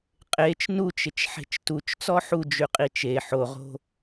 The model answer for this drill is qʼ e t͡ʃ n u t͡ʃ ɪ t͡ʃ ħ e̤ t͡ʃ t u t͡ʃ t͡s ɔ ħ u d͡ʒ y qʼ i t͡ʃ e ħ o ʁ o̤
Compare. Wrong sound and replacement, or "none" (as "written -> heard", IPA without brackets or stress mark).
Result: none